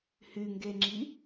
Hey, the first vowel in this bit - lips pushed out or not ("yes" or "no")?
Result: yes